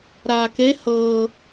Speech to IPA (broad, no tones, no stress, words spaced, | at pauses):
ɾaːke hɤː